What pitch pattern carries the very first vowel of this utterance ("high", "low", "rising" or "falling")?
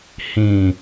low